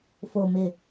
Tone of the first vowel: low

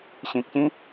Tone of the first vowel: low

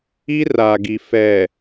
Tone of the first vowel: high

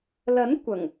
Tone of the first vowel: rising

